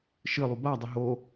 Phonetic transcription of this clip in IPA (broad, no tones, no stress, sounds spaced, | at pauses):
ʃ ɨ lˠ u b a dˤ ə ɦ o